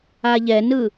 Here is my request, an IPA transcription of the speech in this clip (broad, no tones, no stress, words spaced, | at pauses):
aʎɛnɯ